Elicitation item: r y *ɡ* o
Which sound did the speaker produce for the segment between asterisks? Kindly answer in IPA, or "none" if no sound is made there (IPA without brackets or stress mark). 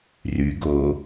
ɡ